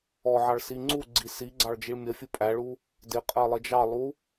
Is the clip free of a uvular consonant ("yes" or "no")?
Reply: no